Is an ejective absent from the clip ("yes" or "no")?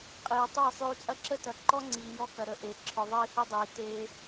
no